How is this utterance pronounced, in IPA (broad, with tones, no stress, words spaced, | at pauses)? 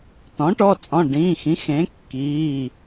tɔ̃˩˥ʈɔ˩˧˩t͡sʼɔ̃˩˧˩ ɖĩː˩˧˩xĩ˩˥xẽ˩˥ kːiː˩˧˩